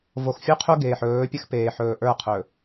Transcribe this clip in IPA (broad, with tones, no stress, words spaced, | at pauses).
vo˨xfʲu˦qʰu˦ ɡeː˨ħɵː˨˦pʲə˦x peː˨ħɵː˨ ʔə˞˦˨qʰɵ˨